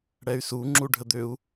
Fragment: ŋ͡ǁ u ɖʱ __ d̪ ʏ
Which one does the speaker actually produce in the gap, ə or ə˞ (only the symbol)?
ə